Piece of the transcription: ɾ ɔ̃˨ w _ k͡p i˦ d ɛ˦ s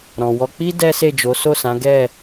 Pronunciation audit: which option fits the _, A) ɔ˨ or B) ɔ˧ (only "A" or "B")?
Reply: B